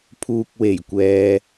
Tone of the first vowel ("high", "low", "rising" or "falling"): low